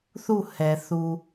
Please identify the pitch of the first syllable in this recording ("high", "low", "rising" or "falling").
falling